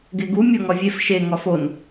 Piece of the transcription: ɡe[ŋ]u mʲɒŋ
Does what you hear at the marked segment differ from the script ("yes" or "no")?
yes